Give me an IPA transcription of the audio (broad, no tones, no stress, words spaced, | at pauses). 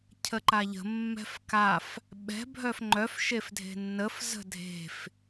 cʰəǃaʎə̤ mːɛ̤fkaf | ɓɛ̤ bʱœfŋ͡ǃœf ʃefdʱe̤nːəf zə̤dʱe̤f